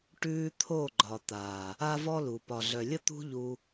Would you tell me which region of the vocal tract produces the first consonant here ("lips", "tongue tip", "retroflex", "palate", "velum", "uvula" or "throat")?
retroflex